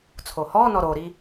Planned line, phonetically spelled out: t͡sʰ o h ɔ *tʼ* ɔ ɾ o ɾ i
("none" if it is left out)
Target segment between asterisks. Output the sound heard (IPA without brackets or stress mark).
n